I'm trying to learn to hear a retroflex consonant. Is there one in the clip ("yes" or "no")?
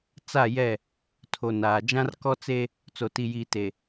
no